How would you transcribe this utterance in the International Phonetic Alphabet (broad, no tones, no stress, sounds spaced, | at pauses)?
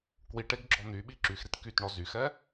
k w i ʈ e ɡ ɡ͡ǁ ɔ n̪ y ɓ i ǁ y x ɾ i t k y t ɳ ɔ z y x ɛ